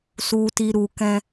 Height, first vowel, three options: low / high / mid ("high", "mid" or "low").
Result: high